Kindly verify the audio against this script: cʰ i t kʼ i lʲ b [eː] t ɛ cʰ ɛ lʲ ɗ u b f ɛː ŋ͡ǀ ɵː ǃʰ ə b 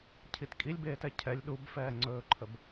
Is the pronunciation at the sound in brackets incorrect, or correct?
correct